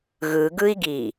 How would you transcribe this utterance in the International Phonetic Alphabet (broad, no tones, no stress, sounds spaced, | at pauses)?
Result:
ɣ ɯ ɡ ɯ i̯ ɡ i